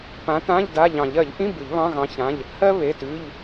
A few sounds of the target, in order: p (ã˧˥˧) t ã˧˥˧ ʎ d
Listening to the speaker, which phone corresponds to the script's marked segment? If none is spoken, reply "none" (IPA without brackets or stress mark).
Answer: ã˨˥